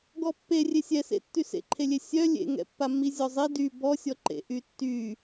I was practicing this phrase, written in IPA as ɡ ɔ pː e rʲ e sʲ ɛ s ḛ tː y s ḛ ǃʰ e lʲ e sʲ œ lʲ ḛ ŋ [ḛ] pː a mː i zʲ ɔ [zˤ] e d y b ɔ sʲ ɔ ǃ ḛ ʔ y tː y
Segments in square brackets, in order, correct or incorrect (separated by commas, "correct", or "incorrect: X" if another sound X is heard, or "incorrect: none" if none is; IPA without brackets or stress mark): incorrect: ɛ̰, correct